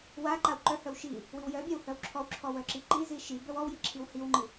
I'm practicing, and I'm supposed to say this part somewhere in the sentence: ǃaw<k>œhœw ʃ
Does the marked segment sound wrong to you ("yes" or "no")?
yes